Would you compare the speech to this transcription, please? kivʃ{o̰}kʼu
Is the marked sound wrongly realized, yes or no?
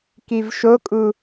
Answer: yes